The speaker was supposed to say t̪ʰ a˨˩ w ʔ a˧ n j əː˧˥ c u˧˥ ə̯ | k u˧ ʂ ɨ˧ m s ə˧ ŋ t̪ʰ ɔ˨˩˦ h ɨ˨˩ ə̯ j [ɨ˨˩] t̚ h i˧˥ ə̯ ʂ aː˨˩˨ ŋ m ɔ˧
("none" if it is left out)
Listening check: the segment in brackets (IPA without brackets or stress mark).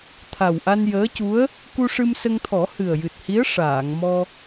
ɨ˨˩